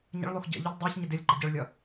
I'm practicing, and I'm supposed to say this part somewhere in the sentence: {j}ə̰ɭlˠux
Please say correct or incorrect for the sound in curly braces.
incorrect: ɲ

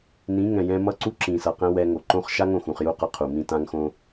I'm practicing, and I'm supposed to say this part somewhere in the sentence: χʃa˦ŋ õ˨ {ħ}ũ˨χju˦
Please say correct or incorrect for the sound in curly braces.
incorrect: x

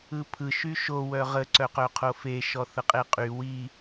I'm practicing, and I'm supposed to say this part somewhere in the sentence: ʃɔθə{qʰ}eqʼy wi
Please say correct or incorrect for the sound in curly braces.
incorrect: qʼ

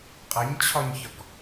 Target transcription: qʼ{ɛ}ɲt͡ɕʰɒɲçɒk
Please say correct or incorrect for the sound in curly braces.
correct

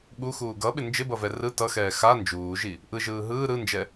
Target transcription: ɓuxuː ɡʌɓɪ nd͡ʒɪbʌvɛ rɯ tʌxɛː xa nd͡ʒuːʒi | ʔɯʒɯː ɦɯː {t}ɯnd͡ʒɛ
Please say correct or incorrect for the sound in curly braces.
incorrect: ɾ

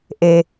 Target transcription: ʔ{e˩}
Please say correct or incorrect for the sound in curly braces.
correct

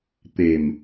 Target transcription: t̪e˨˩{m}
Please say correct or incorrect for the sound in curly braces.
correct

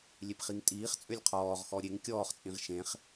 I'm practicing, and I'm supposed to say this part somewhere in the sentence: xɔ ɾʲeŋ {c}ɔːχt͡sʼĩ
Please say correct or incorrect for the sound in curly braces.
incorrect: kʲ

